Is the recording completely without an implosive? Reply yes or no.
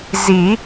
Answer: yes